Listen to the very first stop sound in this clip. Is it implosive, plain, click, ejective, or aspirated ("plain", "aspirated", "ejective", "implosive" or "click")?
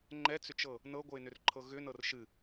click